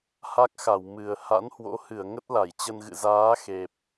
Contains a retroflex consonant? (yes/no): no